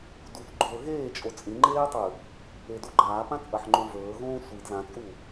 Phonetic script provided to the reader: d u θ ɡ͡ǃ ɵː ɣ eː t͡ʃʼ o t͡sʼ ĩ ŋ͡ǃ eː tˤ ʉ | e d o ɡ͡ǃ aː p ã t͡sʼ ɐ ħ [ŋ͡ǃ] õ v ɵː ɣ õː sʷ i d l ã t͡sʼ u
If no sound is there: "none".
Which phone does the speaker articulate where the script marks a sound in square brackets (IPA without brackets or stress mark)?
ŋ͡ǃ